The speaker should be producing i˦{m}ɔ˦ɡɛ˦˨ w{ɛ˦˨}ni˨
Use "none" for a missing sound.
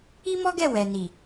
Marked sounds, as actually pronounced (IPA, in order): m, ɛ˨

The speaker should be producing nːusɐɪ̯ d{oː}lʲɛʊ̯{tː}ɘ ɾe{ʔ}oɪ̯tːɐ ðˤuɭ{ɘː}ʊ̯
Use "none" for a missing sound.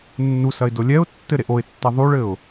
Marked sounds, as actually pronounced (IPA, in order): o, tː, ʔ, ɘ

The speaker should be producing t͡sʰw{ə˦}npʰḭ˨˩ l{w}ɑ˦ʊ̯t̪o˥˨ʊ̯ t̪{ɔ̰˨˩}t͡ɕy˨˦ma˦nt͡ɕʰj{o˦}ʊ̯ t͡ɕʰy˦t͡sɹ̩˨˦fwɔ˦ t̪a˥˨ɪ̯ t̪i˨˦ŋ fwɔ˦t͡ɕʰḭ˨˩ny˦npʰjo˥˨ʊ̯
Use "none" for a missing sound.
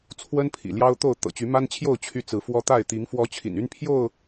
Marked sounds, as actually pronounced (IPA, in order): ə˦, j, ɤ̰˨˩, o˥˨

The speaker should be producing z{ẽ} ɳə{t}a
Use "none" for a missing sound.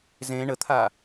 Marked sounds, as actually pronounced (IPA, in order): ẽ, t̪ʰ

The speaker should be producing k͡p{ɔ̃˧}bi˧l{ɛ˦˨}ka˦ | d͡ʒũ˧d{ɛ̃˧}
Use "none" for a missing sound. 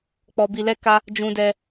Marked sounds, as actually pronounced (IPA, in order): ɔ˧, ɛ˦, ɛ˧

